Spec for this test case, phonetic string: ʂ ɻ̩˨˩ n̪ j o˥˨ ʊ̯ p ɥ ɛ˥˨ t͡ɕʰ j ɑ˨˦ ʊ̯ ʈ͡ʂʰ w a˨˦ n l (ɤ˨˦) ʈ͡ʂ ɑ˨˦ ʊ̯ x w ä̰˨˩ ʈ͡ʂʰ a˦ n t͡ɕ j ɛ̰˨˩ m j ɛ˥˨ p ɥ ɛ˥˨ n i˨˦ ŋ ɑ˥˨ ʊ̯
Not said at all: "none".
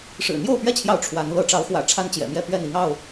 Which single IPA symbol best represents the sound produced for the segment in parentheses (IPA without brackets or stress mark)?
ɤ˨˦